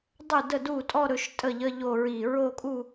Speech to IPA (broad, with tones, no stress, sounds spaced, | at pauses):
dˤ ɵ˥˩ d ə˥˩ d u˥˩ tʼ ɔ˥˧ ɾ ɵ˨˦ ʃ tʼ ə˥˩ ʎ ə˧˥˧ ʎ o˥˧ ɹ i˥˧ ɹ o˥˧ kʼ u˥˧